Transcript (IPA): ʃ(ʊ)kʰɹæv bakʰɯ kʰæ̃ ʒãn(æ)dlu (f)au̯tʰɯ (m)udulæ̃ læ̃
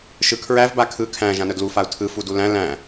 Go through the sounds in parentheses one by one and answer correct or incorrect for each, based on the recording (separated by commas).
incorrect, incorrect, correct, incorrect